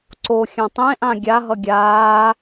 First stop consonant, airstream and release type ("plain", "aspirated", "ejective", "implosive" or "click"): click